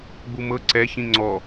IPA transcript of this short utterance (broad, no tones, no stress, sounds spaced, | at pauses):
ɡ͡b u m ɤ ǀ ɛ ç ĩ ŋ͡ǀ ɔ